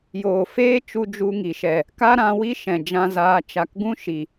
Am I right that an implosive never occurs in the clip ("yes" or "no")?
yes